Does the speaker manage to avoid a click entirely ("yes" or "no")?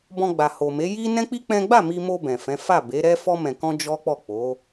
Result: yes